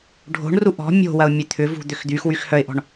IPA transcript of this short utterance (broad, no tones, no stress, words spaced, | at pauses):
ɖʱo̤ɳru ʔɔ̤ mʲo̤wɐʊ̯ mʲøt̪ʰʏvṳ d̪ʏxd̪yxwyx hœɪ̯ʔɔ̤ɳ